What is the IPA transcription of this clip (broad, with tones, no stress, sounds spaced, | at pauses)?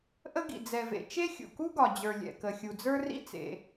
ʔ ə˥ ɡ ḭ˩ d͡z ɛ˩ v ḛ˩ t͡ʃ e˥ xʲ ṵ˩ k u˥ ɡ ɒ˩ d͡ʑ ə˞˩ lʲ ɛ̰˩ k ə˩ xʲ u˩ d͡z ə˞˥ r ḭ˥ t͡s ḛ˩